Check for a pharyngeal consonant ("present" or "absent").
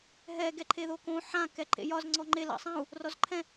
present